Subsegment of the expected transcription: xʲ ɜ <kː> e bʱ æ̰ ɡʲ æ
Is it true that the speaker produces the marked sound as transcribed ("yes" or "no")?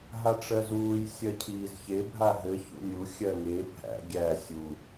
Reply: no